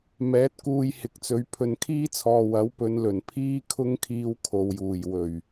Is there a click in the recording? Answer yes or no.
no